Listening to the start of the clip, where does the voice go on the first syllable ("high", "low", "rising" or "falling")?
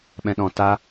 low